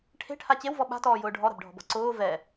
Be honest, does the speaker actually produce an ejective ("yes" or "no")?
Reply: no